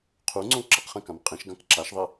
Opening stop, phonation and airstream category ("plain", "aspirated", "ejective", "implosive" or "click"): aspirated